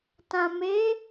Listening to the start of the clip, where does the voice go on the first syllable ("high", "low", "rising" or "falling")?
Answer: low